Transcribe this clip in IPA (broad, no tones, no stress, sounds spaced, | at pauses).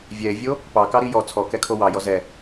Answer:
vʲ ɛ e̯ vʲ o | p ɑ k ɑ ɾ i j ɔ t͡sʰ ɔ k ɛ kʰ o w ɑ j ɔ z ɛ